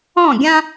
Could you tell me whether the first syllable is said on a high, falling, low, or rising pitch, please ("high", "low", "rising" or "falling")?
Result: falling